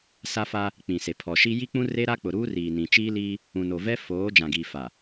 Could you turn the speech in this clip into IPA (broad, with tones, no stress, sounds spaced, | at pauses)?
s a˦ f a˦ | k͡p ĩ˨ s e˨ pʰ ɔ˨ ʃ i˦ j i˦ k͡p ũ˦ r e˦ ɾ a˦ k͡p ʊ˨ ɾ uː˦ r iː˨ n ĩ˨ t͡ʃ iː˦ l iː˦ | ũ˨ n o˨ v ɛ˦ f oː˨˦ d͡ʒ ã˨ ɡ iː˨ f a˨